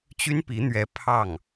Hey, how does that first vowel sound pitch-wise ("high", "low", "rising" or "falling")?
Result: high